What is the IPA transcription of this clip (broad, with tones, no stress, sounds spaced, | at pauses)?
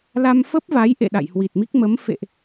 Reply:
l a˧ m f ə˦˥ p̚ v a˨˦ j ʔ ḛ˧˨ ɗ a̰˧˨ j h w i˨˩ t̚ m i˦˥ k̚ m ə˨˦ m f ḛ˧˨ ʔ